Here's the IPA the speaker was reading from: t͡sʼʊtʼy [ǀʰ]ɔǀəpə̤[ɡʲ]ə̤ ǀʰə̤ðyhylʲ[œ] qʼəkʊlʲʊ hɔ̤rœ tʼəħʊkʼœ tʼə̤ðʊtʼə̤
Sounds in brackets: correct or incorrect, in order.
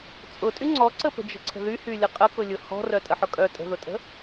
incorrect: ŋ͡ǀ, incorrect: d͡ʒ, incorrect: ə

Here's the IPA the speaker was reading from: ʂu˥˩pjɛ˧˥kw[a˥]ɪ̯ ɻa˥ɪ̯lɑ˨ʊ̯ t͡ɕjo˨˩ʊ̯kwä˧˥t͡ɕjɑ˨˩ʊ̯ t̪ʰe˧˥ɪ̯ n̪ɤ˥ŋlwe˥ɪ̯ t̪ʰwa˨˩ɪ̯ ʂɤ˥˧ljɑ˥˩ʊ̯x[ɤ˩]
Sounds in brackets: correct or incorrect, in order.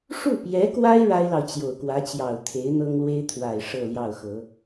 correct, incorrect: ɤ˧˥

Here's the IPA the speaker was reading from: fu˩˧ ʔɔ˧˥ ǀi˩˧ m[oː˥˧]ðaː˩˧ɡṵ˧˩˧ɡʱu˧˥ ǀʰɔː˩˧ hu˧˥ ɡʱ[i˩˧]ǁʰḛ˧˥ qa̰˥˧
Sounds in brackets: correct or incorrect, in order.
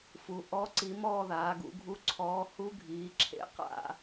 incorrect: ɔː˥˧, incorrect: iː˩˧

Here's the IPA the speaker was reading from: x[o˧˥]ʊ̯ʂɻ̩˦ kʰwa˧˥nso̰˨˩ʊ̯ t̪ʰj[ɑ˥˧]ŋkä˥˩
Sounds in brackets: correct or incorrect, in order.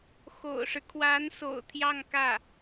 incorrect: o̰˨˩, correct

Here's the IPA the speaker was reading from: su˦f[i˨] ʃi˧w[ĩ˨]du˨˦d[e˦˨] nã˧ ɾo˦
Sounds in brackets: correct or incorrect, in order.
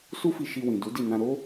incorrect: i˧, correct, incorrect: i˦˨

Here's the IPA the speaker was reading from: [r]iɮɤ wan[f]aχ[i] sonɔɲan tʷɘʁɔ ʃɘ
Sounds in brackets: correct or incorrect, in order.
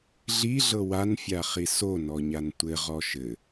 incorrect: ɮ, incorrect: fʲ, correct

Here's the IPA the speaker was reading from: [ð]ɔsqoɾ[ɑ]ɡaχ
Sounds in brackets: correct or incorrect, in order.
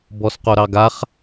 incorrect: b, correct

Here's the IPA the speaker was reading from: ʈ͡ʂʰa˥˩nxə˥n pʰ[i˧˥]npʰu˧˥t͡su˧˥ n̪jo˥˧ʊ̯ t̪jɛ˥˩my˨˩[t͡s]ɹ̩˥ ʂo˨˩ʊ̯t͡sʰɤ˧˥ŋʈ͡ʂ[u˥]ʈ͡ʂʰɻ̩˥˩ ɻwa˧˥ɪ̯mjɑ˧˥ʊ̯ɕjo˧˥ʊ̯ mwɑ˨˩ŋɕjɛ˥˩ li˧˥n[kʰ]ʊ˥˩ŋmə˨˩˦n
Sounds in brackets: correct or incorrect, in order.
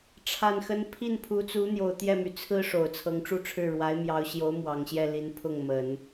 incorrect: i˥˩, incorrect: t͡sʰ, incorrect: u˥˧, incorrect: pʰ

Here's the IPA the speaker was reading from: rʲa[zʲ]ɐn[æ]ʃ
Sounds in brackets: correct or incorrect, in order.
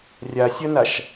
incorrect: sʲ, incorrect: a

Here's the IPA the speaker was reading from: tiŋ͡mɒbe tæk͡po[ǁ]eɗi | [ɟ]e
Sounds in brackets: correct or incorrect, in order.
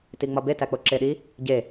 correct, correct

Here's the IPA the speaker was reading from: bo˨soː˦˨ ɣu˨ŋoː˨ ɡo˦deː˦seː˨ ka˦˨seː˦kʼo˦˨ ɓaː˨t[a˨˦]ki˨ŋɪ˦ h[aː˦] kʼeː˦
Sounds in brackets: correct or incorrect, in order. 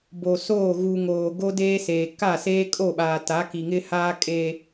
correct, correct

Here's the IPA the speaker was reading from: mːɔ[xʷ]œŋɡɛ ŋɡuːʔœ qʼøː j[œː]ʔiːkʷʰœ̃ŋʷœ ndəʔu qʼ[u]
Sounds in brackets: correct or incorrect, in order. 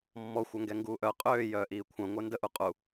correct, correct, correct

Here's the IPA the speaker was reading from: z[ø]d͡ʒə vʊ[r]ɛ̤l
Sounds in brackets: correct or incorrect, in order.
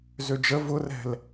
correct, correct

